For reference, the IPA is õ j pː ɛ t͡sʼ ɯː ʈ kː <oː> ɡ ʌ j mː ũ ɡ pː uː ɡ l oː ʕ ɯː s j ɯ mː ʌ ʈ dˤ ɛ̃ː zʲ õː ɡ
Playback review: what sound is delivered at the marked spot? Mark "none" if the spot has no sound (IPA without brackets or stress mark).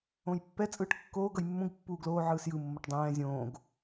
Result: oː